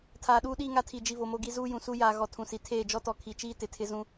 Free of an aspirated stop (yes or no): no